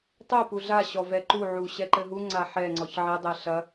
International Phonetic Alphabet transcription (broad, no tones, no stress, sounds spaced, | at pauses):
tˤ ɛ p u ɮ a ɕ ɔ v ɛ ǃ u ʕ u ɕ ɛ ǃ ɘ ɦ u ŋ͡ǀ a ħ ɛ ŋ͡ǀ ɔ ç ʕ ɛ dˤ ɛ ɬ ɐ